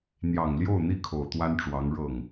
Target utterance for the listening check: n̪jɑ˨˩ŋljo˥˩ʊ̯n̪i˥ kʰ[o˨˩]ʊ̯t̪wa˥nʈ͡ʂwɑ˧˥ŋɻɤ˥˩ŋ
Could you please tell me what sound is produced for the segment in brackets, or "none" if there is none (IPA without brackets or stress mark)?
o˨˩